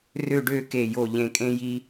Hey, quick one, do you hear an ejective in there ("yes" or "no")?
yes